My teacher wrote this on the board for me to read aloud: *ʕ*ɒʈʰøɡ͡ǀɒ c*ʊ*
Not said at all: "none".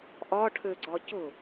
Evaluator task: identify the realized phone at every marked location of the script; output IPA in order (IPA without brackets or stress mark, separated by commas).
ʔ, ʊ